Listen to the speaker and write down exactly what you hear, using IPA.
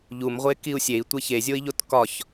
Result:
ʎ u m ʁʷ e k i u̯ sʲ e i̯ tʷ e ç e zʲ o i̯ ʎ o t k ɒ ç

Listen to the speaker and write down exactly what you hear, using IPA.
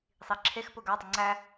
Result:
sˤ i ǁʰ e x p ʊ ɡ a dˤ ʊ ŋ͡ǀ æ

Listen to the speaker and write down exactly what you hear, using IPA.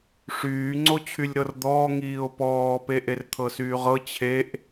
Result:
ʂ yː ŋ͡ǀ o t͡ɕʰ y lʲ ɾ ɤ r d̪ ɔː ŋ iː o̯ p ɔː p e ʔ e r t̪ʰ ɤ s yː ʁ ɤ t͡ɕʰ e ʔ

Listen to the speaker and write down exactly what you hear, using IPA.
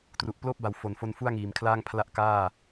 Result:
t r u˨˩ ʔ p l oː˥˩ p̚ b a˨˩ w f o˨˩ n f o˧ n f u˥˩ a̯ ŋ iː˨˩ m kʰ l aː˥˩ ŋ pʰ l a˥˩ ʔ k aː˥˩

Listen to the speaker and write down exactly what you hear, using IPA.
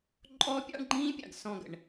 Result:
ǃʼ ɔ˦ pʲ ɑ̰˦ ɳ ɡ͡ǃ ĩː˦ pʲ ɑ̰˨ ɡ s ɔ̃˦˨ ɡ ə̰˨ ɳ

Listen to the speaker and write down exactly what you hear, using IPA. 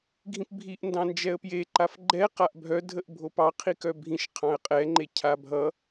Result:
ɡʱ ĩ p bʱ i ʔ n d ɑ̃ n d͡ʒ ɛ ə̯ p j e ǃ a f ɡ͡ǃ ɛ q a ʔ bʱ œ dʱ ə ʔ bʱ o p ɑ qʰ i k œ bʱ ĩ ʃ qʰ ɑ̃ ə̯ qʼ ɛ ŋ͡ǃ e cʰ a bʱ ʌ

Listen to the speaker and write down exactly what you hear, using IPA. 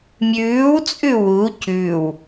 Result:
mʲ ʉː w t͡sʼ ʉ w u c ʉ w

